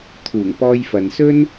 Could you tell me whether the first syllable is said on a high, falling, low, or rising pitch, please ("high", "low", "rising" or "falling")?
low